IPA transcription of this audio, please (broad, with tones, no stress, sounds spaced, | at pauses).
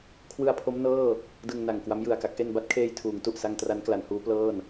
kʰ w ɯ˧ a̯ pʰ o˦˥ m n ɤː˥˩ | d ɯ˧ ŋ n a˨˩ ŋ k w a˦˥ m j ɯ˨˩ a̯ k a˦˥ k̚ ʔ e˧ n b a˦˥ t̚ kʰ eː˧ j tʰ uː˩˦ ŋ t u˨˩ ʔ s a˧ ŋ t r a˦˥ n k l a˩˦ n h uː˦˥ p l ɤː˥˩ n